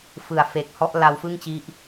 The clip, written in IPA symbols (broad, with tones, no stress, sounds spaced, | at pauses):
f ɯ˨˩ a̯ f e˨˩ k̚ h ɔ˦˥ ʔ l a˧ w f ɯ˥˩ ŋ t͡ɕ i˦˥ ʔ